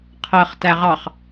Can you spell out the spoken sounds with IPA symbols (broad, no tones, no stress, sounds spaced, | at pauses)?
qʰ ɜ χ t æ ʁ ɑ χ